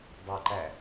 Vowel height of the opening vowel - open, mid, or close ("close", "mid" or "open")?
open